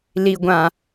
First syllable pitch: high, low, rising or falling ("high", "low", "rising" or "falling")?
low